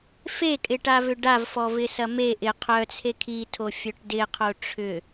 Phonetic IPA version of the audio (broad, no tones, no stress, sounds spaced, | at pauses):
f e kʼ ɪ ʈ a v ʏ ɖ a v f ɔ v ɪ s ɐ m e ʔ ɪ qʰ œ t͡sʰ e kʰ i tʰ o fʲ œ ʈ d ɪ qʰ o ʈ͡ʂʰ ʏ